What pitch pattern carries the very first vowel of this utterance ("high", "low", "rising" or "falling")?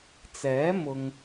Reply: rising